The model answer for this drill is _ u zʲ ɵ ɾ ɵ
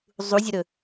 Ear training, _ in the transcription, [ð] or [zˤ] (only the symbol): zˤ